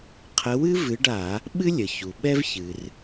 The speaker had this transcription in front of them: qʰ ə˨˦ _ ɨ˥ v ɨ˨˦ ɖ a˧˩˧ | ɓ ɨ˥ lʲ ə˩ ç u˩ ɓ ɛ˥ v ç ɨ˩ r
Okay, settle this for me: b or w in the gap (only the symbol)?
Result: w